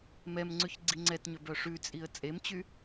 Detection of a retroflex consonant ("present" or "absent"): present